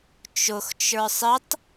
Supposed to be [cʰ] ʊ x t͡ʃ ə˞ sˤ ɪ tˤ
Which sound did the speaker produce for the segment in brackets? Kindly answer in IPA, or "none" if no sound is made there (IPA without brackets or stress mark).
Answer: t͡ʃ